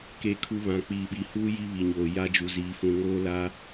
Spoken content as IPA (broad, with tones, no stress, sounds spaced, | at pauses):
k e˦ kʰ u˦ β ã˨ k͡p iː˨ ɓ i˨ h uː˦ j i˦ β i˨ ɲ oː˨ j a˦ d͡ʒ u˨ z iː˨ f ũ˨ ŋ oː˦ l a˦